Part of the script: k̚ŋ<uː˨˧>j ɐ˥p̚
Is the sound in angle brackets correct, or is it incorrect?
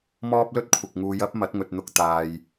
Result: correct